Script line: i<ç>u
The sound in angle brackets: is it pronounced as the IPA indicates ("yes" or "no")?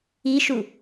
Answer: no